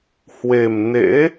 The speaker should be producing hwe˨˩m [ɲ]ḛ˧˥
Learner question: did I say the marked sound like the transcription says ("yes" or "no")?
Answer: no